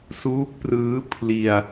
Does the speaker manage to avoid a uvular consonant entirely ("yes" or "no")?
yes